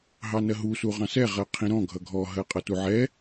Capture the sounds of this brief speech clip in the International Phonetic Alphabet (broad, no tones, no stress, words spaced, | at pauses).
ɦɑnɜɦu suʁɑ̃sɛ ʁɜqʰĩɾɔ̃ ɡʱʌɡʱɔ ɦɜqʼʌtuʕɛ